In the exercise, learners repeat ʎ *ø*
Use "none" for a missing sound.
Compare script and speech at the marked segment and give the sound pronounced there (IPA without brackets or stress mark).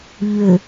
ø